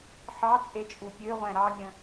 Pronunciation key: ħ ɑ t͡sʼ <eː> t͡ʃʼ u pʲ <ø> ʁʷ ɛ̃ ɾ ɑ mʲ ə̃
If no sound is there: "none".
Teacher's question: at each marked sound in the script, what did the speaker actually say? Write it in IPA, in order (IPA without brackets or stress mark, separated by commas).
e, ø